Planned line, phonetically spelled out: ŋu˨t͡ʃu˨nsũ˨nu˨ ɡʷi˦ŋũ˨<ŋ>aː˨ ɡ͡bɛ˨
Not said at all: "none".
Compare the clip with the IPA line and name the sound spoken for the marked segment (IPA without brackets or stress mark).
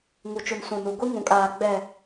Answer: kʼ